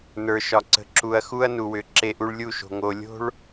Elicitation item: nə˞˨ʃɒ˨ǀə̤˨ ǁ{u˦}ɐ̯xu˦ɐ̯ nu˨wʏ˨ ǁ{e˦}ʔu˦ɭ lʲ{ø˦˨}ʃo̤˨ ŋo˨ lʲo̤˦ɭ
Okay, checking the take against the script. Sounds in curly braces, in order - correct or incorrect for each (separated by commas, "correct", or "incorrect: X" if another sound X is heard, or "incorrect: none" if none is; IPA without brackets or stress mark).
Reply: incorrect: u˨, correct, incorrect: u˦˨